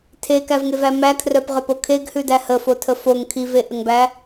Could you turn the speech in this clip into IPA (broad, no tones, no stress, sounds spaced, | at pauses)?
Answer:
tʰ e k æ v ŋ e v æ m æ kʰ r œ p ʁ œ p o kʰ e ɡ h ʉ d æ h ə f o tʰ ə f o ŋ kʰ i v e ʔ ə ŋ b æ